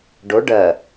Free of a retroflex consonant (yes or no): no